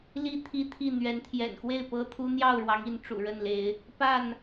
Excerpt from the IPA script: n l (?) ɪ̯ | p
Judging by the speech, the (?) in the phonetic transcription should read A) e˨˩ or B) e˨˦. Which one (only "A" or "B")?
B